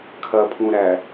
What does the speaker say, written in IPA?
kʰ ɐ pʰ ũ ɾ æ

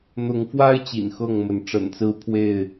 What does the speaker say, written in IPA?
n̪ ʊ˨˦ ŋ f w a˦ ɪ̯ t͡ɕ ḭ˨˩ n x ɤ˥˨ ŋ m ə˨˦ n ʈ͡ʂ ə̰˨˩ n t͡s ɹ̩˦ pʰ w e˥˨ ɪ̯

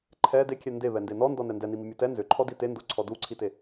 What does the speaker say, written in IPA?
ǃʰ ɛ d e kʲ ɛ n d e β ɛ n d e n ɔ n d ɔ n ɛ n d ɛ n i m i mʲ o t ɛ n z ʏ ǃʰ ɔ d i t e n d o ǀʰ ɔ d u ǀʰ i t e

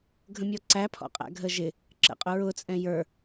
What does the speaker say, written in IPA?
ɡʱ ə̃ mʲ ɔ ǀ æ pʰ ɔ̰ qʼ æ̰ ɡʱ ə ʒ ɪ | ǁ ə̰ qʼ ʊ ɹ ʊ t͡sʼ ɛ̃ j ə˞

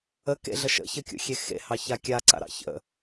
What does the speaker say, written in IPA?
ə k ḛ ɮ ə ʃ ə̰ ç ə kʲ ṵ xʲ e x ḛ h ɑ ç a kʲ a ǀ a̰ ɾ ɑ̰ ç ə̰

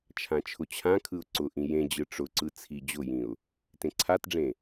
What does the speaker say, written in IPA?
t͡ʃʰ ã t͡ʃʰ ʊ t͡ɕʰ ã kʰ ɯ ʊ̯ ǀ ʊ ʔ ĩ j ẽ d͡ʑ ɯ ʈ͡ʂ ʊ ǀ ɯ t͡sʰ i d͡ʑ ʊ j ĩ ʊ̯ | t ẽ ǀʰ a t ɖ͡ʐ ẽ

